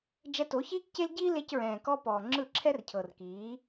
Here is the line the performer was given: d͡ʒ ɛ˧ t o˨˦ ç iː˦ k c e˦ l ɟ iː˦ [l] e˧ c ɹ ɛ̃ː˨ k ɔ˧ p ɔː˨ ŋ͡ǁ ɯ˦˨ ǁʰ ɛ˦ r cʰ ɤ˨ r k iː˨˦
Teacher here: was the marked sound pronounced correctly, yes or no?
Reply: yes